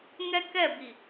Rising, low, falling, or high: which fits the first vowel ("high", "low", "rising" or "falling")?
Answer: high